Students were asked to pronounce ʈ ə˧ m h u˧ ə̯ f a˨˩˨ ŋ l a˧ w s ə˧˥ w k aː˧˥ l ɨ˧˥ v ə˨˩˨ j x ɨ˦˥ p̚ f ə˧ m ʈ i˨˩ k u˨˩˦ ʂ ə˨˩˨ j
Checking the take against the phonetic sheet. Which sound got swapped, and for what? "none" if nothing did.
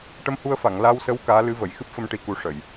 none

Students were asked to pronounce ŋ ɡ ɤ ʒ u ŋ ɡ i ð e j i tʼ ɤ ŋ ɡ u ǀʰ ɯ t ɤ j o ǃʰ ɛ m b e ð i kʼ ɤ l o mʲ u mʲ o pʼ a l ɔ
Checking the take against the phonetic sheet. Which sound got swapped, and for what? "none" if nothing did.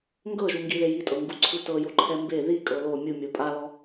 none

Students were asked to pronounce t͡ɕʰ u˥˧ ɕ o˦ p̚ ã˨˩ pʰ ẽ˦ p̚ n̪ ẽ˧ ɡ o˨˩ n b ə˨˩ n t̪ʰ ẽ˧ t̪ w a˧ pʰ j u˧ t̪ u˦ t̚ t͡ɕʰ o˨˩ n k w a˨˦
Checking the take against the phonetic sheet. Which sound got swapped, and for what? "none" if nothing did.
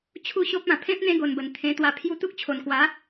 t̚ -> k̚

